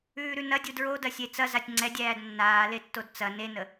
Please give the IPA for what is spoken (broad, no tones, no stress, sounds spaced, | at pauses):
ʉː ɾ ʉ n ɐ dʲ u d ɹ o d ɐ sʲ e t͡s ɐ z a tʲ ŋ͡ǀ ɛ dʲ æː d nː aː l e tː o d t͡s ɐ n e n ə